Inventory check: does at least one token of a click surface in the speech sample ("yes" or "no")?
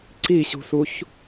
yes